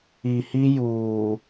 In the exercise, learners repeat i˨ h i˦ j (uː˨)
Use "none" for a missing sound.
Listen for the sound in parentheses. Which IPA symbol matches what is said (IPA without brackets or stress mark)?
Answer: uː˨